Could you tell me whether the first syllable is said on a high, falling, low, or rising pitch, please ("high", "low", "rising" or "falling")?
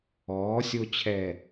rising